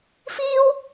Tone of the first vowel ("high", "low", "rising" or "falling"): high